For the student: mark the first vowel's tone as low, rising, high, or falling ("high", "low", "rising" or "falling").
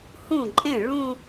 falling